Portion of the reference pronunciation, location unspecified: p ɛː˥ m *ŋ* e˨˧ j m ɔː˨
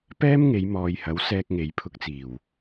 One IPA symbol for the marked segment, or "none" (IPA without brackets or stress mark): ŋ